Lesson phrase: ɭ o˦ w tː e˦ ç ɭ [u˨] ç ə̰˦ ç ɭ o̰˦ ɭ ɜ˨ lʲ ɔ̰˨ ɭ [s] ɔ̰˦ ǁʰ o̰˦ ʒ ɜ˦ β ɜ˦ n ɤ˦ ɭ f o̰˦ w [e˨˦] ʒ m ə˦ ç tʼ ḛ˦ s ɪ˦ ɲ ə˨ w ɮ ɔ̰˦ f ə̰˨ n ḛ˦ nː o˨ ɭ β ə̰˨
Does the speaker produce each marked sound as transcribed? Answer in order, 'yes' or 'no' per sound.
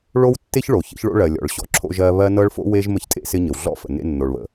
no, no, no

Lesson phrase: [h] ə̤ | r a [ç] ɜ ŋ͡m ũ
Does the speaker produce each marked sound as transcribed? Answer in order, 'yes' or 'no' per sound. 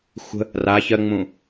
no, yes

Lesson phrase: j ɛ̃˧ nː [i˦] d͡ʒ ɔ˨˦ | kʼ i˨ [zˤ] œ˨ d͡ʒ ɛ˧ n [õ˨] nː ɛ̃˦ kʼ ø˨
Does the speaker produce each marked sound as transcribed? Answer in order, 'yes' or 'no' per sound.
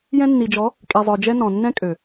no, yes, no

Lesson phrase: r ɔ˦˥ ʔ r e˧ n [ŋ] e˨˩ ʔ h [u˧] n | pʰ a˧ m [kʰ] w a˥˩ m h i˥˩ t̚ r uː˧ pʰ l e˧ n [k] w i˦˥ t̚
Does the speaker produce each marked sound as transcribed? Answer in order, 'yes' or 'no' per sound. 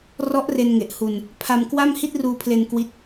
yes, yes, no, yes

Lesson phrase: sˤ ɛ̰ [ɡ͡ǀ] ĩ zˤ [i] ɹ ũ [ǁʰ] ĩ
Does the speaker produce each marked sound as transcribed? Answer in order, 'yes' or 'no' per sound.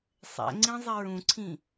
no, yes, no

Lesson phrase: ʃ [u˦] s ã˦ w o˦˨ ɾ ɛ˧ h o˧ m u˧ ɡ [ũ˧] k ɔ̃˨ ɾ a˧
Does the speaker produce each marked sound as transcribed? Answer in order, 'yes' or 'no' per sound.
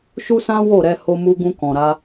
yes, yes

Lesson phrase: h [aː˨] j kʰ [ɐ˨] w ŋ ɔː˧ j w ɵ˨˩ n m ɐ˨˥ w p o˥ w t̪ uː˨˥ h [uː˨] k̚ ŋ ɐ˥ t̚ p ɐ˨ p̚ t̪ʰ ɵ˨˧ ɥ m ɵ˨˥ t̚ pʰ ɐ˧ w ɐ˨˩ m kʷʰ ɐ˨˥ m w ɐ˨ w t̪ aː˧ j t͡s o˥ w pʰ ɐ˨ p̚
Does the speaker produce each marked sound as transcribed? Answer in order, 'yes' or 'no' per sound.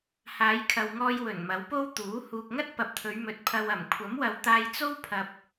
no, yes, yes

